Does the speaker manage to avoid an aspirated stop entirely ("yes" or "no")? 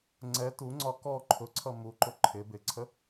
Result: no